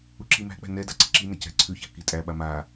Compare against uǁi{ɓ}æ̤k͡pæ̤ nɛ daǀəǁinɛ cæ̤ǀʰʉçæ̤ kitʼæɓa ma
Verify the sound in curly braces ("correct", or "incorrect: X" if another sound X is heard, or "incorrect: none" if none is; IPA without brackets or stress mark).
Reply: incorrect: m